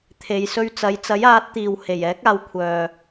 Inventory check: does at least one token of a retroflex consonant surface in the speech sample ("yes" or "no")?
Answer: no